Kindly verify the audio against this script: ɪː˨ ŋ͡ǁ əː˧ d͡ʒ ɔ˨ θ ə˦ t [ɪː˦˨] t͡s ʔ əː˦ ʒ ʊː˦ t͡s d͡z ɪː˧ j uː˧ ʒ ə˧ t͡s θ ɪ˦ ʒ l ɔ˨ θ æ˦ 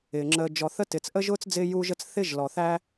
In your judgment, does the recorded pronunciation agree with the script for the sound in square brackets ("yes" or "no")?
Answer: no